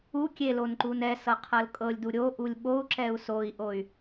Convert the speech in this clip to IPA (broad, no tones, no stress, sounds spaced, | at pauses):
u kʲ e l o n ǃ u n ɛ s ɤ qʰ ɤ l kʼ ɤ lʲ d u ɾʲ o ʔ u lʲ ɓ o u̯ ǁ ɛ u̯ s o i̯ ʔ o y̯